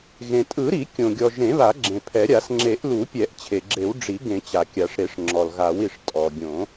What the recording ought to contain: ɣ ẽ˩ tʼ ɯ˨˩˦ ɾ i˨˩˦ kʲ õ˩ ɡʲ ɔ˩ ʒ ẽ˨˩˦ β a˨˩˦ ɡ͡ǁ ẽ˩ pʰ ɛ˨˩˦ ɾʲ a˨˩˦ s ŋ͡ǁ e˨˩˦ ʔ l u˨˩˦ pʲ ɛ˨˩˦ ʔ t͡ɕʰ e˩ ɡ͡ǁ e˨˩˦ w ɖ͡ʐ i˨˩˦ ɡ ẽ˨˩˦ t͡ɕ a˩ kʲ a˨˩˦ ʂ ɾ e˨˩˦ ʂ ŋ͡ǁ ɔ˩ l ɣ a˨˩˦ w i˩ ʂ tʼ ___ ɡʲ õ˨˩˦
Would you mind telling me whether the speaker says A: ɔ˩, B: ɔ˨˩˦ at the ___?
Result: A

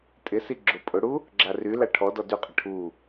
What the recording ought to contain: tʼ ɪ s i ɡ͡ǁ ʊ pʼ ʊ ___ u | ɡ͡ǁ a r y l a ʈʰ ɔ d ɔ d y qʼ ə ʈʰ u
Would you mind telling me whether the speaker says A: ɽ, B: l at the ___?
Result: A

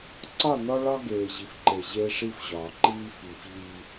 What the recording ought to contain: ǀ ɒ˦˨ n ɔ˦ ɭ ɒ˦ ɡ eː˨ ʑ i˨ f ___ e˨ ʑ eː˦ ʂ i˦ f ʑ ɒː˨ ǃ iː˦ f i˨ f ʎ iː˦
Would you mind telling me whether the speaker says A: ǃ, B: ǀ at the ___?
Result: A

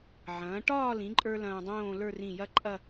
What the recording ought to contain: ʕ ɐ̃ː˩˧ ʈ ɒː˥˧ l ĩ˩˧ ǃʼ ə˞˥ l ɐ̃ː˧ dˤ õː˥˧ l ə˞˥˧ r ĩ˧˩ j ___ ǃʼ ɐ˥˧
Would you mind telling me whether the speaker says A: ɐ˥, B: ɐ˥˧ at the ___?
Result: A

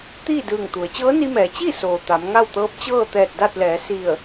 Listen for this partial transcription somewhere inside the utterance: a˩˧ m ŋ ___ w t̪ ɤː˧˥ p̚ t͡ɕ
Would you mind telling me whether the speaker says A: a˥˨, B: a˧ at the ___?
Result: A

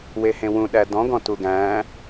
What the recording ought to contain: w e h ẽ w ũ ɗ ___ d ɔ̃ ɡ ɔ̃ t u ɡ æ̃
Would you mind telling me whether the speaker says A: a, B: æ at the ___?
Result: B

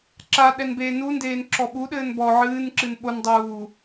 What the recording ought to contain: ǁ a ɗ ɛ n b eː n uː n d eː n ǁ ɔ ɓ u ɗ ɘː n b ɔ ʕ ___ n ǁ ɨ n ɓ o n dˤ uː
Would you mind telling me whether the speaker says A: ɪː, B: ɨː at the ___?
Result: B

